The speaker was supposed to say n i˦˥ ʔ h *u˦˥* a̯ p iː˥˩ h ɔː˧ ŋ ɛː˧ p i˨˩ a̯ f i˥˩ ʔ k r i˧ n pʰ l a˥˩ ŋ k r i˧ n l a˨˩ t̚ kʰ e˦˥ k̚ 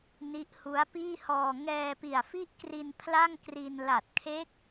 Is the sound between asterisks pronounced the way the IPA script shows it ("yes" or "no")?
yes